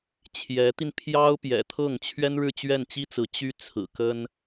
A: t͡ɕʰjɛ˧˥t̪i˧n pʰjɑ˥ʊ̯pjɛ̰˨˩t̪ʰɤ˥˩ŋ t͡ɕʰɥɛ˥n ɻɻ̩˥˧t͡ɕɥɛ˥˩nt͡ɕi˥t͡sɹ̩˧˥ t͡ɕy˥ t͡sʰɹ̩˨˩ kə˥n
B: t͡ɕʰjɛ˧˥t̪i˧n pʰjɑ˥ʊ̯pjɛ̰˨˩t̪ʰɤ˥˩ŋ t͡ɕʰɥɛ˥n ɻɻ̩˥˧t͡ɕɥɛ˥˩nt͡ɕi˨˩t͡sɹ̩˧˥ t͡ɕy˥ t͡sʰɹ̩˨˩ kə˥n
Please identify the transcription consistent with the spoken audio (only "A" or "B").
A